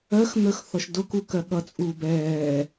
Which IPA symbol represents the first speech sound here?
ɜ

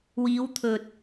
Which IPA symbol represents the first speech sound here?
w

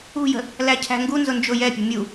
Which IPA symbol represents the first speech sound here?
ṳ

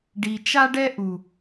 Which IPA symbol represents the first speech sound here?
ɖ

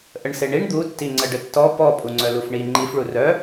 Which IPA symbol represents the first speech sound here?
ʔ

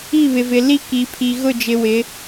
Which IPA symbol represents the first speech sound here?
i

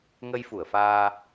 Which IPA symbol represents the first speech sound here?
ŋ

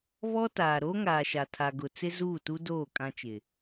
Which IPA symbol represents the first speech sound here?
β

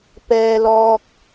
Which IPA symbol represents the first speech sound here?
p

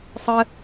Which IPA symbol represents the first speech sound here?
sˤ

